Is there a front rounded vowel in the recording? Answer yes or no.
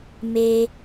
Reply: no